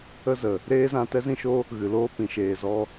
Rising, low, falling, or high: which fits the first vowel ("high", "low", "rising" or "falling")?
high